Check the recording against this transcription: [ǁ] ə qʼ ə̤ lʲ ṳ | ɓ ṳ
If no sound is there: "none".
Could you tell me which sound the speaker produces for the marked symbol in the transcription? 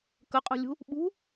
k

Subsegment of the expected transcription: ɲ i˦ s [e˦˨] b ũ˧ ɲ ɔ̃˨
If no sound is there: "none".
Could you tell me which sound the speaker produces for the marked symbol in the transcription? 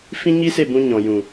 e˦˨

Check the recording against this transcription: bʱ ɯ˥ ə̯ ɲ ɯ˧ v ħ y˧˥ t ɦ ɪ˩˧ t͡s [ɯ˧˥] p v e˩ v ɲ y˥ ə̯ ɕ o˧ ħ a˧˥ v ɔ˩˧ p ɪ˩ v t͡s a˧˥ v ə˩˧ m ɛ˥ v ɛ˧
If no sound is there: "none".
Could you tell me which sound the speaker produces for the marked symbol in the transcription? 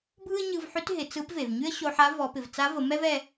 ɯ˧˥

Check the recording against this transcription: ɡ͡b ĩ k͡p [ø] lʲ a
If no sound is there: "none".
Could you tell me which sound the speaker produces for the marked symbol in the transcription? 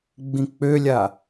ø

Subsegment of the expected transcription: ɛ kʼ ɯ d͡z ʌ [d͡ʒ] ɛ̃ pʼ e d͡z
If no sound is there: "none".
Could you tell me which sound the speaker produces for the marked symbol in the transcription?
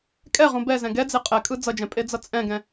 d͡ʒ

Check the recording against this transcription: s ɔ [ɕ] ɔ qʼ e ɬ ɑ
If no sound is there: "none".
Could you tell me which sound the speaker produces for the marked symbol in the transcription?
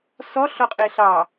ɬ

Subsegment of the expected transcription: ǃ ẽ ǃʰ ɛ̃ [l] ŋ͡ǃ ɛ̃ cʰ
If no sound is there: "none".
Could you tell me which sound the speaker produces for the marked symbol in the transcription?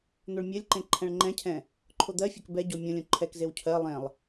ɭ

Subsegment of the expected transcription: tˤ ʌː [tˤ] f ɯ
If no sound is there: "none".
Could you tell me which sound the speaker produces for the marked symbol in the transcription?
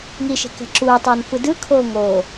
n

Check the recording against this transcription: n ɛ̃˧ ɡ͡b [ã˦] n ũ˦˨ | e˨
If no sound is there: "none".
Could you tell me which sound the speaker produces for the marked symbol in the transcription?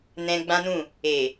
ã˦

